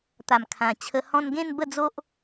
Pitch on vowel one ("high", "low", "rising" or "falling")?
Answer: low